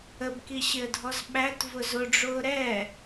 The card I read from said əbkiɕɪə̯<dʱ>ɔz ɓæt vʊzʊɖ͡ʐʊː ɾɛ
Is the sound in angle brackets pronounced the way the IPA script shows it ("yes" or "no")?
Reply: yes